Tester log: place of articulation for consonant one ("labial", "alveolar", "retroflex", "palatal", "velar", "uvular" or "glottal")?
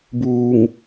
labial